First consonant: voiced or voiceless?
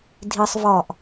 voiced